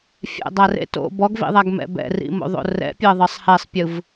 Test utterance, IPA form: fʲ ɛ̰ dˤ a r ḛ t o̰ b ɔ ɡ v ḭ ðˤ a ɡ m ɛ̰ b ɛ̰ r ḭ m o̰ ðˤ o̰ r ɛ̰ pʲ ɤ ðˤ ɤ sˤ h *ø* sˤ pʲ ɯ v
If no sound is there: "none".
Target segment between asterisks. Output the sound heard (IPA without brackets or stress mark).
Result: ɛ